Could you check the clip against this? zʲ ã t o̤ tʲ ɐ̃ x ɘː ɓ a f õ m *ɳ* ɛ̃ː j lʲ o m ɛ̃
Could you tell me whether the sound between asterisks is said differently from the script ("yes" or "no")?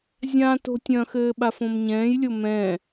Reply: yes